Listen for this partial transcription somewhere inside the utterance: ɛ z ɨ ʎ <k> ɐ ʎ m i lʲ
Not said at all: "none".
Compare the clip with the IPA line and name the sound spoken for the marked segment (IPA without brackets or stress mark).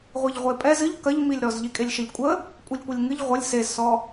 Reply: k